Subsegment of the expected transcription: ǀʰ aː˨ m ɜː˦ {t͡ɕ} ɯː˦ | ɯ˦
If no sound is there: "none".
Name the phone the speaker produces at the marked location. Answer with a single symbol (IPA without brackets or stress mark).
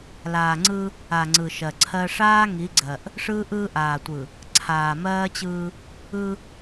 t͡ɕ